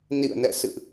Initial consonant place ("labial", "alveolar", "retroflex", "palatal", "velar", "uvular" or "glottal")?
alveolar